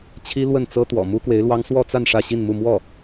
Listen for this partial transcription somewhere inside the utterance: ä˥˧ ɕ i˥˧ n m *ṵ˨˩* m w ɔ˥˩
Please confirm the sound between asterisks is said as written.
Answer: no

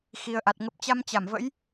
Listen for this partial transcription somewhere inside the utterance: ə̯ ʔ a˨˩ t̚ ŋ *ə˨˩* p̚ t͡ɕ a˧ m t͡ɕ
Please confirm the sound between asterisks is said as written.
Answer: yes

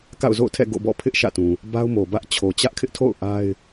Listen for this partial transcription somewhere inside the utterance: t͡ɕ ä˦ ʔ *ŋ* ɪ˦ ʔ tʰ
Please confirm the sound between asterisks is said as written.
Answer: no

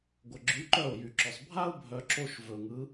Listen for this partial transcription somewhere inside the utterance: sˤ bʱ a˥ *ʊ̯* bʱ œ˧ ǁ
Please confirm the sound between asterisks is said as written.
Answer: yes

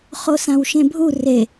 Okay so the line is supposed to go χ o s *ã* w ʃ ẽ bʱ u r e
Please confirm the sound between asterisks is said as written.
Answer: yes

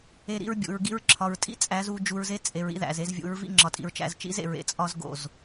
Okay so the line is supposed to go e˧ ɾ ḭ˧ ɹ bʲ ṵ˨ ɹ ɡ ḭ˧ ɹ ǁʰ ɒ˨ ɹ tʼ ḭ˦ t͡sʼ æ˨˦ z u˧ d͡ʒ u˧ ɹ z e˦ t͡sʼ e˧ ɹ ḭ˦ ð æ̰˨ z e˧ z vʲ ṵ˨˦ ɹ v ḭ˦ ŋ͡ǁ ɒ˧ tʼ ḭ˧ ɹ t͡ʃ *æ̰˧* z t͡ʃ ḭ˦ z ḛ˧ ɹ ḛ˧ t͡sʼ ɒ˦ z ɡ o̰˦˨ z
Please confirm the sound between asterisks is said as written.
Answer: yes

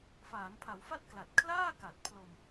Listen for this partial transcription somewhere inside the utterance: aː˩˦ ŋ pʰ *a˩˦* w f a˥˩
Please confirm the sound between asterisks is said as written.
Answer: yes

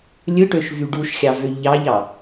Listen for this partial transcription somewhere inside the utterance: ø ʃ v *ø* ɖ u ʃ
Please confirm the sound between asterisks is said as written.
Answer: no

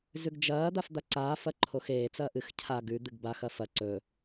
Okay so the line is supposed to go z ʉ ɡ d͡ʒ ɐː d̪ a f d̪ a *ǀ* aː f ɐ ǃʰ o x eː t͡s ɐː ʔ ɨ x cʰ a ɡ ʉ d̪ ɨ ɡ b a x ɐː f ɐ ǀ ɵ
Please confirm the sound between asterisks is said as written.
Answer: yes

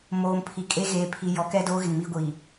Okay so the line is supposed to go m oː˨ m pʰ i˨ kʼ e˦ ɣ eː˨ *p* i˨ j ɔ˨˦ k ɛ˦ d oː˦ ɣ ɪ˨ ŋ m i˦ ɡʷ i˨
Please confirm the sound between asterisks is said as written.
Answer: no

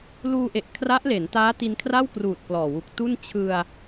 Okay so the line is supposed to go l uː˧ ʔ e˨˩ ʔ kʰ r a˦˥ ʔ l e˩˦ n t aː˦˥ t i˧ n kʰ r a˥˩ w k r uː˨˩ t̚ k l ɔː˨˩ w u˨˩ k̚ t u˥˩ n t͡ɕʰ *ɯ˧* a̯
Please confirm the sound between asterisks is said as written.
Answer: yes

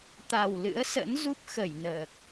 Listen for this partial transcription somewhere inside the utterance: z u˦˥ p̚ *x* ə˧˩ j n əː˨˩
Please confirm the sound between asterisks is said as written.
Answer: yes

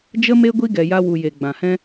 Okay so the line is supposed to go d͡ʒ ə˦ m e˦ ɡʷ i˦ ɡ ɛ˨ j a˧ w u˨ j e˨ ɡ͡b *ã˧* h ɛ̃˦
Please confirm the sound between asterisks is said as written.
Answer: no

